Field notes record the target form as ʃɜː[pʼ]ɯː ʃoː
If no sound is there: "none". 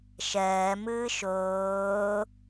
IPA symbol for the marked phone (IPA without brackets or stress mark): m